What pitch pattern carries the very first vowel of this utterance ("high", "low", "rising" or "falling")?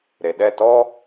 low